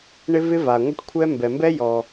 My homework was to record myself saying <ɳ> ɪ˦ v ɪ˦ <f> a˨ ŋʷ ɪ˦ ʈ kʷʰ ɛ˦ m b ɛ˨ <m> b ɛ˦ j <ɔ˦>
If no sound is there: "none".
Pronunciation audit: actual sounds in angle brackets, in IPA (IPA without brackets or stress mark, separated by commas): ɳ, v, m, ɔ˦